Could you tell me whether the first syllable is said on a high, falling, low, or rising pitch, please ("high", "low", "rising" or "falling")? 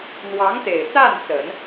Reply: rising